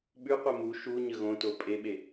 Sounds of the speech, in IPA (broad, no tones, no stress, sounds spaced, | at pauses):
ɓ ʉ qʷ e m u ʃ u ɲ ə ɣ õ t o pʼ e ɓ e